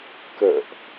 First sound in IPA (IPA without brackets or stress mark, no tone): k